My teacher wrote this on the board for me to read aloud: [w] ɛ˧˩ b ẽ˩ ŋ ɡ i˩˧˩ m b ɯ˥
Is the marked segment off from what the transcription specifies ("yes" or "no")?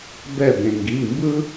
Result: yes